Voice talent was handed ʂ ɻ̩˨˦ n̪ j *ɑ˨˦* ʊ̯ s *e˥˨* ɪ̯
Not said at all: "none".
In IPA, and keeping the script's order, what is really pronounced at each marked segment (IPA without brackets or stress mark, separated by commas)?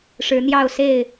ɑ˥˨, e˥˨